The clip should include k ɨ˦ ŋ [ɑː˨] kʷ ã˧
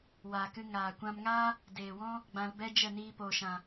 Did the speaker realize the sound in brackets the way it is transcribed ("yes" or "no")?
no